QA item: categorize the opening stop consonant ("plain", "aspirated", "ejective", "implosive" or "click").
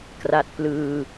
plain